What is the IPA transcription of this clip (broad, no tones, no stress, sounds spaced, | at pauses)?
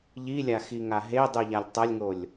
ʎ i lʲ a x i ŋ a ɦ e dˤ ɯ ʎ a lʲ tˤ ʌ lʲ ŋ o lʲ